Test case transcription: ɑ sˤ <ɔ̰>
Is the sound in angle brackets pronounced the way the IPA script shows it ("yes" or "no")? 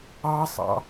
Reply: no